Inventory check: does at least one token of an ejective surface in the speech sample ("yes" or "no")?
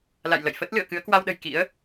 no